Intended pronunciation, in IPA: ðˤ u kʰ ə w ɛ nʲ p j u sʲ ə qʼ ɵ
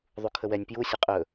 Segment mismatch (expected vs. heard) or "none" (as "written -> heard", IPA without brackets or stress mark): none